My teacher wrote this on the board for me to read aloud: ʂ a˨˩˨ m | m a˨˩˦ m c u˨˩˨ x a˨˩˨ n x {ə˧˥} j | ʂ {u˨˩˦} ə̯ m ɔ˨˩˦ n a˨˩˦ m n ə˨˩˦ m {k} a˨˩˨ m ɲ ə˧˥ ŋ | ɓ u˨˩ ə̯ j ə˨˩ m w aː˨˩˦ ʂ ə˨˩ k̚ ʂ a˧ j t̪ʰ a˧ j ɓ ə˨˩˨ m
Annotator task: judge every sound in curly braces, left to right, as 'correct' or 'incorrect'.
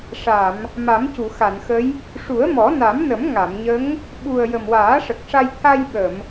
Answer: correct, correct, incorrect

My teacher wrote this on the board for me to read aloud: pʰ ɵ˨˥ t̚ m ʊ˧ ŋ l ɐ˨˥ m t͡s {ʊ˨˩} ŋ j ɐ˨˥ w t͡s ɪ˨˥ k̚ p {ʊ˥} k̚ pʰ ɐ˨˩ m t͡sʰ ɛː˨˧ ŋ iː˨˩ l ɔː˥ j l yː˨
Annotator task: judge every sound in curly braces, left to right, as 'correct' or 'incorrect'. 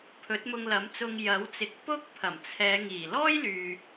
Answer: incorrect, correct

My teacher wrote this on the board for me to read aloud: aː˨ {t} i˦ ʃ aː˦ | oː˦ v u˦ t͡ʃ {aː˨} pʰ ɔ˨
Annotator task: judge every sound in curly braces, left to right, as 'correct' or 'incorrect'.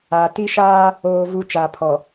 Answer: correct, correct

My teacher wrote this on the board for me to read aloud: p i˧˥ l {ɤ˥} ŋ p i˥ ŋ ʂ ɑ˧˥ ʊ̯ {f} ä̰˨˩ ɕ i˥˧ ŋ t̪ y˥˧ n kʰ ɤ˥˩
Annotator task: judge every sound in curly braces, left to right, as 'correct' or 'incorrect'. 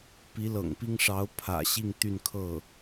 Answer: incorrect, incorrect

